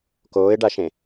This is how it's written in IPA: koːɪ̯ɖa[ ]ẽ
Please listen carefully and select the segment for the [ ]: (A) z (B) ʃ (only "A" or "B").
B